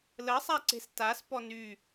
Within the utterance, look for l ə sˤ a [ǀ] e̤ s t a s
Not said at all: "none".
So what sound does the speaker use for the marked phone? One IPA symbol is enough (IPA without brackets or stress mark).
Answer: ǀ